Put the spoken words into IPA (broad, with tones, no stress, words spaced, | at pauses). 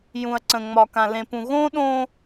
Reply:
jũ˨ɐ̯ǀə̃˨ ŋ͡mɒ˨kã˨lẽ˨pũ˨ ɣõ˦ɗõ˦